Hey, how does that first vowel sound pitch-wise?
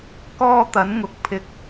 high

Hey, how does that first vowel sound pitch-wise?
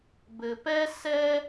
low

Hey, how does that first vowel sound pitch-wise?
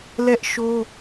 high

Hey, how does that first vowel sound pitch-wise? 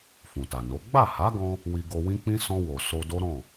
low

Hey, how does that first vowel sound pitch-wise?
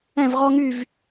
falling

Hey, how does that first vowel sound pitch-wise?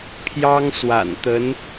high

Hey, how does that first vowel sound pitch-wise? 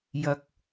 low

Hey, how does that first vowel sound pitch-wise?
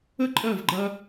high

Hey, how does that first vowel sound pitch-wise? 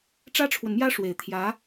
high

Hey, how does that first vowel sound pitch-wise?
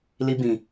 high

